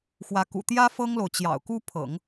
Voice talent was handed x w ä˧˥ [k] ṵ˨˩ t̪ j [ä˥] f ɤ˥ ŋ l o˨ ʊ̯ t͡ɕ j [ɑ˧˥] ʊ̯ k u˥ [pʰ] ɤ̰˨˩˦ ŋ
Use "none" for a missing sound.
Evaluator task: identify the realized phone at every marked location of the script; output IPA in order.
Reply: k, ä˥, ɑ̰˨˩, pʰ

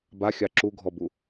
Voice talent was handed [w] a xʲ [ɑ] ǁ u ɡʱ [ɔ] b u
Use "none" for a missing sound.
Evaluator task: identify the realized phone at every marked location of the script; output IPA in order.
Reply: b, ɑ, ɔ

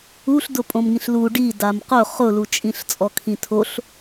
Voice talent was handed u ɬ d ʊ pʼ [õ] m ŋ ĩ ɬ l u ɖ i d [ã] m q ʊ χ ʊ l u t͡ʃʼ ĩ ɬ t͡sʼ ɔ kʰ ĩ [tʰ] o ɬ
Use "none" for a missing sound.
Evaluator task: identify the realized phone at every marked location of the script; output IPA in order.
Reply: õ, a, tʰ

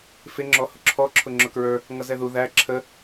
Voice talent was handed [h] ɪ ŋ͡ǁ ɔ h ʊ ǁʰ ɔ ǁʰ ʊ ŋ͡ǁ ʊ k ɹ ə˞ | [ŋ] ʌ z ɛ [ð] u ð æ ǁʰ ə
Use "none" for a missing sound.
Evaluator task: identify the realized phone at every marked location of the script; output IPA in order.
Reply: f, ŋ, ð

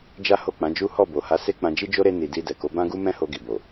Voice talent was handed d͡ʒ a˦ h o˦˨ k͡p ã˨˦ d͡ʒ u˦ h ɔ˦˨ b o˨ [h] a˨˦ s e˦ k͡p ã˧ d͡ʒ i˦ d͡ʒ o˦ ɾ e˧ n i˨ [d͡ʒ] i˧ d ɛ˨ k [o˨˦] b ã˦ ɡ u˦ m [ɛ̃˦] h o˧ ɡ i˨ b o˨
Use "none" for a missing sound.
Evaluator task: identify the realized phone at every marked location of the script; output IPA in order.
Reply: h, d, o˨˦, ɛ̃˦

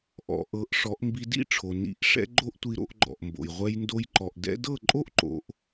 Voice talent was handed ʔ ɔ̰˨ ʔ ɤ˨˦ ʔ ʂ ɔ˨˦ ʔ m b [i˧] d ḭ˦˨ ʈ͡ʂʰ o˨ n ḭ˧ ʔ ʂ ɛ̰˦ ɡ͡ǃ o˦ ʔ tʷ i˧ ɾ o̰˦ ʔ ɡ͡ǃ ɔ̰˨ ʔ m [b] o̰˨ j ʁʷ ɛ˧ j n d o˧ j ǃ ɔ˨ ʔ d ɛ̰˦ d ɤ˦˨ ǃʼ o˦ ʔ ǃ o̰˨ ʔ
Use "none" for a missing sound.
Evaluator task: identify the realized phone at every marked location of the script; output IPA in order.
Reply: i˧, b

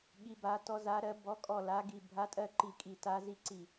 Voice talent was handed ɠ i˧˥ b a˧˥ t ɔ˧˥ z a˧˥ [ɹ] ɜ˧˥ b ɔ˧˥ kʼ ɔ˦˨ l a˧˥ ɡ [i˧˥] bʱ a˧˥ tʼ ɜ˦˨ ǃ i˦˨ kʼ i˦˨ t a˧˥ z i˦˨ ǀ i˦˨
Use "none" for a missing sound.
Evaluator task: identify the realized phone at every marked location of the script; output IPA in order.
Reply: ɾ, i˦˨

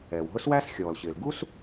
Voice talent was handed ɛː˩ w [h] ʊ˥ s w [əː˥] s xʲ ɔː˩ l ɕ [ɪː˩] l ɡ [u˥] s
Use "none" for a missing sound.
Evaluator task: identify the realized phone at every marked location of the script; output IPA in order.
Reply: ɦ, æː˥, ɪː˩, u˥

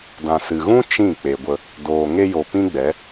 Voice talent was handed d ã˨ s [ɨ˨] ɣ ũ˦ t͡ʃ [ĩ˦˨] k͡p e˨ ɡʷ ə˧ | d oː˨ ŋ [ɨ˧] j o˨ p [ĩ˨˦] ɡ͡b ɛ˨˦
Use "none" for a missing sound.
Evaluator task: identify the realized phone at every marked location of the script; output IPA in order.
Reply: ɨ˨, ĩ˦˨, e˧, ĩ˦

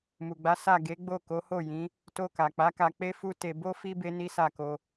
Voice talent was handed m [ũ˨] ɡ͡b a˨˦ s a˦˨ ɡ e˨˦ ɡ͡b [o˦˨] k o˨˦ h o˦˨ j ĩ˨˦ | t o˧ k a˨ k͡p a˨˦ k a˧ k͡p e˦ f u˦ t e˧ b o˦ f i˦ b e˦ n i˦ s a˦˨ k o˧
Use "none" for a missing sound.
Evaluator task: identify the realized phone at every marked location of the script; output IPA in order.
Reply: u˨, o˦˨

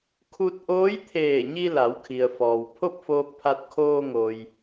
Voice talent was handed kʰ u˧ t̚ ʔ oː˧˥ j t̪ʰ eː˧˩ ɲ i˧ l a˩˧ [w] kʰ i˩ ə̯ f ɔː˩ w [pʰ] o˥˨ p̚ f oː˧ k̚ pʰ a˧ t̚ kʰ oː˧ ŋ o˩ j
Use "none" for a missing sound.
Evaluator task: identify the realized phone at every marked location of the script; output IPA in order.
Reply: w, pʰ

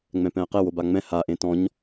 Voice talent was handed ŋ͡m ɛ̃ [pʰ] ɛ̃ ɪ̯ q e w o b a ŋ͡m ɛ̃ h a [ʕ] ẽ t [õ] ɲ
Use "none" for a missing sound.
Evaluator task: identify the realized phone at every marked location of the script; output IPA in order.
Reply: p, ʔ, ɔ̃

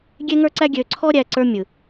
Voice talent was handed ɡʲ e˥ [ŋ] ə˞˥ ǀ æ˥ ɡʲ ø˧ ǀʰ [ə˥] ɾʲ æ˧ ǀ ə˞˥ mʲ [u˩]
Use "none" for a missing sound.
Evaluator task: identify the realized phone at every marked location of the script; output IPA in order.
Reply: ŋ, ɔ˥, ɯ˩

